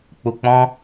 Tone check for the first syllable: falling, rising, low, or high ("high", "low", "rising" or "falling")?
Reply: low